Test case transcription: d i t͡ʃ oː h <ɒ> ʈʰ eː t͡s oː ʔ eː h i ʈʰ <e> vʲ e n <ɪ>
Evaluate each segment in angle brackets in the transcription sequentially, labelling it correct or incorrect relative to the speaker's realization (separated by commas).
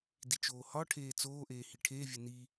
correct, incorrect, incorrect